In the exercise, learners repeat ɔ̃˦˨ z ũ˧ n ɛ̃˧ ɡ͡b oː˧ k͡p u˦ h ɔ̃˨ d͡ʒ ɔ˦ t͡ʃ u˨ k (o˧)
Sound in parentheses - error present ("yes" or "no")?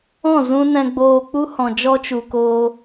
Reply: yes